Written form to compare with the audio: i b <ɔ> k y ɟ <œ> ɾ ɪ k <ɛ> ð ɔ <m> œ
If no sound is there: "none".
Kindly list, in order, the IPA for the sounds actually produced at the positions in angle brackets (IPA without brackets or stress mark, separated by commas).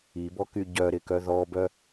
ɔ, œ, œ, b